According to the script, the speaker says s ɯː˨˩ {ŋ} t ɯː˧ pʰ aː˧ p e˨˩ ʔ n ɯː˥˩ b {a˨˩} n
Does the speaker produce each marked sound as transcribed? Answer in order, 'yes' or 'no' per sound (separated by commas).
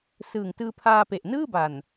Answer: yes, yes